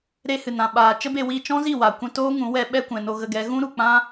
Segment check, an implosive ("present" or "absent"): present